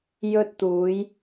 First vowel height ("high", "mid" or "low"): mid